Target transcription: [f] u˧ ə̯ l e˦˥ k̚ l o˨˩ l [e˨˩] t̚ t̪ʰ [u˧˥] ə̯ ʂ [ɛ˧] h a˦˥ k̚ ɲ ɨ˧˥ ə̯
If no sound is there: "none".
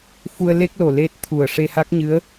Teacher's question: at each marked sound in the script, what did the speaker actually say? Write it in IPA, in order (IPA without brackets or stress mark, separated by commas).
f, e˦˥, u˨˩, e˧